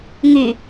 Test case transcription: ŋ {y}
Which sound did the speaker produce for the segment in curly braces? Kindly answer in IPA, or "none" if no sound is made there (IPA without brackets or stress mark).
y